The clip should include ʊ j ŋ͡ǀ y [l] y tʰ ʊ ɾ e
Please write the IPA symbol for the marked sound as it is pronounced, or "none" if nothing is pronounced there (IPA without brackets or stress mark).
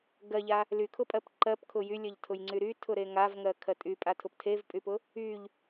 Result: ɾ